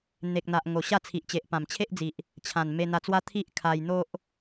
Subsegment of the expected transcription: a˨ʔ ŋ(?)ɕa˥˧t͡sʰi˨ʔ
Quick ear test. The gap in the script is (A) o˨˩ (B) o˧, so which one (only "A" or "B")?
A